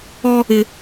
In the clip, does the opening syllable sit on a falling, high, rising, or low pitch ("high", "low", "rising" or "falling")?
high